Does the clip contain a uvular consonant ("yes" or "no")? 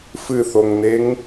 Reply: no